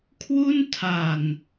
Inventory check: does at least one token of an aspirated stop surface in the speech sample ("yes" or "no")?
yes